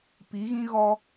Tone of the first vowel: rising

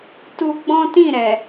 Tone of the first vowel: high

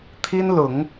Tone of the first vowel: high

